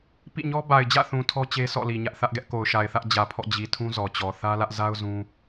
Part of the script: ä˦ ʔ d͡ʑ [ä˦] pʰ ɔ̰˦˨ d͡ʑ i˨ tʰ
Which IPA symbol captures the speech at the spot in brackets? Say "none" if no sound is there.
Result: ä˨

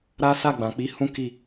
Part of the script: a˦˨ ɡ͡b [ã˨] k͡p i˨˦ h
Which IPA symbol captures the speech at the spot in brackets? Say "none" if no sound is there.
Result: ã˨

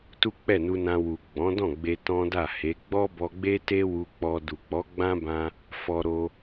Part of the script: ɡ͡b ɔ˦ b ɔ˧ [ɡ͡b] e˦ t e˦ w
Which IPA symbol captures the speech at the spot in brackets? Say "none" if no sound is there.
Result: ɡ͡b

